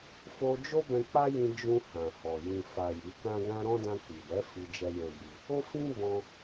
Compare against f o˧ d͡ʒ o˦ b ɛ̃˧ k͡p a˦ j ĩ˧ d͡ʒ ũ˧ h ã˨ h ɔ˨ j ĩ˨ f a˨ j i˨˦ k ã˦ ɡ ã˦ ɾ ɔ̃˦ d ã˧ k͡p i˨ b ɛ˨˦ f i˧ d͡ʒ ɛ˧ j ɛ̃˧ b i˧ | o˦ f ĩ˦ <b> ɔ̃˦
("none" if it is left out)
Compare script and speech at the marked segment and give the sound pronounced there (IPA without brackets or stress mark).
b